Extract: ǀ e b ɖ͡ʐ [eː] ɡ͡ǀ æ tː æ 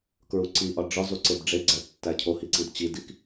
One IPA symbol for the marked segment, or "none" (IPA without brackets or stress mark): e